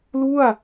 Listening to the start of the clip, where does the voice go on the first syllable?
falling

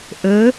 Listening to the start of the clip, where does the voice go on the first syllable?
rising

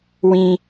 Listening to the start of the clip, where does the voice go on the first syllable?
high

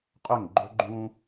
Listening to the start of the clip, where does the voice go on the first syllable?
falling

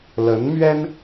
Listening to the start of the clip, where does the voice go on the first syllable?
rising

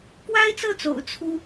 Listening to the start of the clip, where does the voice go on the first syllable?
high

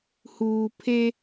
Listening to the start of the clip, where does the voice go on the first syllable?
low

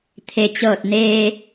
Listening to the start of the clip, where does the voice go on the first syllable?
low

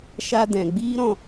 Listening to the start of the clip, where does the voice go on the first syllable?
high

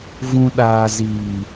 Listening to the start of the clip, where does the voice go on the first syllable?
low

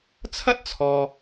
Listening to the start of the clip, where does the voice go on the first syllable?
high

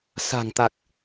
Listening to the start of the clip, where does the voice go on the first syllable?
low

